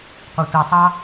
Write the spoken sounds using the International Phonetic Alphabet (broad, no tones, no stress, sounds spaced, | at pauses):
qʷ ɯ tʷ ɯ tˤ ɑ